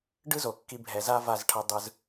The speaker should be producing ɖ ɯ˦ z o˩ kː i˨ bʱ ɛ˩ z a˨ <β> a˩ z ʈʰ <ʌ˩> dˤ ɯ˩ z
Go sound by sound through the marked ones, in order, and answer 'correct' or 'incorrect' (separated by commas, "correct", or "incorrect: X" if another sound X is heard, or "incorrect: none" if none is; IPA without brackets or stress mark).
incorrect: v, correct